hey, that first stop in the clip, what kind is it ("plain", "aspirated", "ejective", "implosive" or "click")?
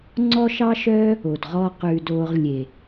click